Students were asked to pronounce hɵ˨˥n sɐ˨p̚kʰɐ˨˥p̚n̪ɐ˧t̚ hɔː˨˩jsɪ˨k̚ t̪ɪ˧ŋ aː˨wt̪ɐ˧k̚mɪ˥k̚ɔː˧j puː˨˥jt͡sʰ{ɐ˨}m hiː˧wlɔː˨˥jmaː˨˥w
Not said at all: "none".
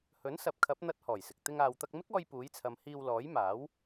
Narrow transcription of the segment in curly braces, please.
ɐ˨˧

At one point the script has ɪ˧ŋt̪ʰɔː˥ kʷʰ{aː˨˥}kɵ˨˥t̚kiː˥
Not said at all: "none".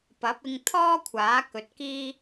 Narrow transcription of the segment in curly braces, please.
aː˨˥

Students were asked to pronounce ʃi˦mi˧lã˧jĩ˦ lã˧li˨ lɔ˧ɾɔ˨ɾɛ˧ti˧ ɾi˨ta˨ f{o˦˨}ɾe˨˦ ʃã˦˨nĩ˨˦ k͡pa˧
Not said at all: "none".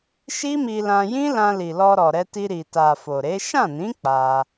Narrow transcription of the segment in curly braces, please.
o˨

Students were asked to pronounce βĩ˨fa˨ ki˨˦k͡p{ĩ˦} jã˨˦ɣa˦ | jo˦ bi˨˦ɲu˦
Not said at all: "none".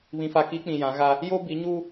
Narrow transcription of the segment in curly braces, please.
ĩ˨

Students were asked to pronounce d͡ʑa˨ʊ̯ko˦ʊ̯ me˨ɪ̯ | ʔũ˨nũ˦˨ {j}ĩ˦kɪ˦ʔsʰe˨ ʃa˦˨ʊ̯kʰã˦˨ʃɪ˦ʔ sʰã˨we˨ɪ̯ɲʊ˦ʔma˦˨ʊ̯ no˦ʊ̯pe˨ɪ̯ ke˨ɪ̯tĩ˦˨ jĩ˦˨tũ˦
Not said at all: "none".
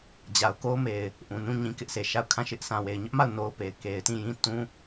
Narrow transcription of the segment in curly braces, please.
ɲ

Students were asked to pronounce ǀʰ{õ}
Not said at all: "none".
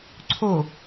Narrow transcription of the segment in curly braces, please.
o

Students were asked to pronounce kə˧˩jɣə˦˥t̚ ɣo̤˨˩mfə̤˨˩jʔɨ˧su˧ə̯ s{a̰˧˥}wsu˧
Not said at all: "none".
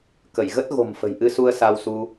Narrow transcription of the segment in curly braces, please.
a˧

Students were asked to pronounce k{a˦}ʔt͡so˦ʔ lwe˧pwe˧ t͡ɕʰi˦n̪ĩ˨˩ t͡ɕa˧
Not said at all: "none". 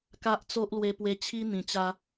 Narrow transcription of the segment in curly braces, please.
a˦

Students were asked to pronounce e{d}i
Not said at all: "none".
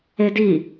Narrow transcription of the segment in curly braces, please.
d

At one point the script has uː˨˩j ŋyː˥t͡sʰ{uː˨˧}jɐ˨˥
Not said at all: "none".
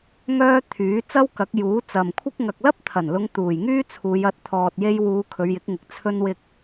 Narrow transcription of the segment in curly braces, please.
uː˨˧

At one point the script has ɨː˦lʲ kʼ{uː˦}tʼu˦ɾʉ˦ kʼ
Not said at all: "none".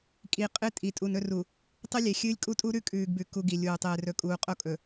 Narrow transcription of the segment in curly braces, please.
u˦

